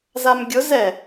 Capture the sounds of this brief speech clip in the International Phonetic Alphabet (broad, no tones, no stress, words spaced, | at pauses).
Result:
zamɡʲʊ zɛ